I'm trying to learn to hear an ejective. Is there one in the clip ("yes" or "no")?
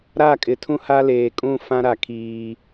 yes